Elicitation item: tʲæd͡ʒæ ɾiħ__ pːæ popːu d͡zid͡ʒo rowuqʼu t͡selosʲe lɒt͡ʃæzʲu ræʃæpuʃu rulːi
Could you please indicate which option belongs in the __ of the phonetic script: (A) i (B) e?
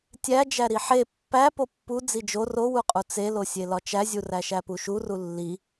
B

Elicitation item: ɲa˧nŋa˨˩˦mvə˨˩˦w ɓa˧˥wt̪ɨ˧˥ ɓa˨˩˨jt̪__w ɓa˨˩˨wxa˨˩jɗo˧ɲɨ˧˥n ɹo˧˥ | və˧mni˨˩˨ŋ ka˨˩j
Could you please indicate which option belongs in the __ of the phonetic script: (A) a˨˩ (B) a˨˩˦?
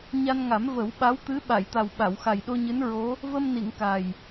A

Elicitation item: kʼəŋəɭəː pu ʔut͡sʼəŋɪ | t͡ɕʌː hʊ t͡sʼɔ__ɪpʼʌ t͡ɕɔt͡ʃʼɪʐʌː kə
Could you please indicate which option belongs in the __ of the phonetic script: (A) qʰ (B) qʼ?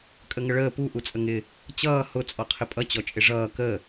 A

